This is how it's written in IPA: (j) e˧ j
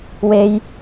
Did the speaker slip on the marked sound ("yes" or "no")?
yes